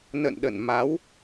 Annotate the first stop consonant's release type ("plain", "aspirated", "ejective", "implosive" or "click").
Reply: implosive